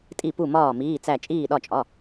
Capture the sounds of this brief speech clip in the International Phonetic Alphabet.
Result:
tʼ i˧˩ p u˧˩ m ɒː˧˩ m iː˩˧˩ t͡s æ˧˩ t͡ʃʼ iː˧˩ ɗ ɒ˧˩ t͡ʃʼ ɒ˩˧˩

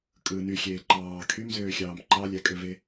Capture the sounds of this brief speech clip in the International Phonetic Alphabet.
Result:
kʼ ɯ n y xʲ eː ǃ ɑː kʰ y m z øː xʲ ɑː m ǃ ɑ lʲ æ kʼ ø v e

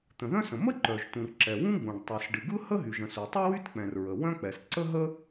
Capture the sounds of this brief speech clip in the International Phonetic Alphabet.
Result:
t̪ ə̃˩ ð œ̃˥ s ə̃˩ m ə˥ ǃ œ˩ ʒ t ũ˩ r ǁ ɛ˩ w ũ˥ ɡ͡b ũ˩ ɖ tˤ u˩ s ɖ ɨ˩ ɡ ɯ˥ h ə˥ ɦ y˩ ʒ ə̃˩ s u˩ tˤ ɨ˥ w y˥ t k͡p ɛ̃˩ r ɹ ə˩ w œ̃˥ k͡p ɛ˩ s ǀ ə˥ ɦ ə˥

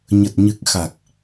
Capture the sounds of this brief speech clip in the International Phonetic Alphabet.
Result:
ɲ ə˨˩ t̚ ɲ ɨ˨˩ k̚ x a˨˩ k̚

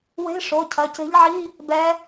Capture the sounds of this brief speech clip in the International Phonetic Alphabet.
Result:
w e̤˧˥˧ ʂ o˩˧˩ cʰ ɐ˩˧˩ c e̤˧˥ ʎ ʕ i˧˥˧ | b ɛ˧˥

